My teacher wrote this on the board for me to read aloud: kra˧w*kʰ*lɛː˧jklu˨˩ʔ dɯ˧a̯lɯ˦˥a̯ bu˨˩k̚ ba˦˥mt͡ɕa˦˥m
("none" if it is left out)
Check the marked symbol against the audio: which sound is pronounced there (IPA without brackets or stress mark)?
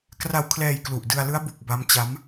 kʰ